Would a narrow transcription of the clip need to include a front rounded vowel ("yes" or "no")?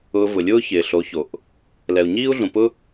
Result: no